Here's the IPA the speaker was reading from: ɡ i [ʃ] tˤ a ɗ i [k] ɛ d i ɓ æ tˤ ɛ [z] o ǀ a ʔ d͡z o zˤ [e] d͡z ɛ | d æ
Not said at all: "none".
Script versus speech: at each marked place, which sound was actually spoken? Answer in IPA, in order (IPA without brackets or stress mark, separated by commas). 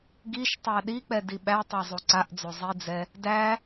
ʃ, k͡p, zˤ, i